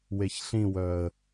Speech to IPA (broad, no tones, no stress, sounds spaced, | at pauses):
w e ç ɬ ĩ w œ ə̯